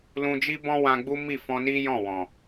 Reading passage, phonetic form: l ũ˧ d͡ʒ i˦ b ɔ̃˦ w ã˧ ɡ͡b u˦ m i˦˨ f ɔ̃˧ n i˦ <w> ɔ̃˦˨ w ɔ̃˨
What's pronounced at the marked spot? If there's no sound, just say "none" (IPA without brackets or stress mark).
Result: j